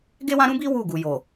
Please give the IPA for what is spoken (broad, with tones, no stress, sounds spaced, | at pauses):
ɡ e˦ w ã˦ ɾ ũ˦ b i˦ w u˦˨ ɡ u˨ j o˨